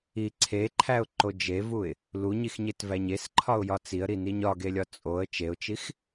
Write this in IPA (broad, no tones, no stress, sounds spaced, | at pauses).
i ǀʰ e ǃʰ æ ʊ̯ ǃ o d͡ʒ e v u ɪ̯ | l u ɲ i x ɲ e t v æ ɲ e s ǃʰ ɒ ʊ̯ j ɒ t͡s i ə̯ ɾ i n i ɲ ɒ ɡ e lʲ ɒ t͡sʼ o ə̯ t͡ʃ e ʊ̯ t͡ʃ i x